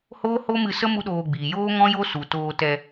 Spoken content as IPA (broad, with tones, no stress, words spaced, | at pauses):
hoː˦ho˦mɨ˧sə˦ mu˦ɗoː˧ɡ͡biː˨ joː˦ŋɔ̃˦jo˦su˨ toː˧tɛ˧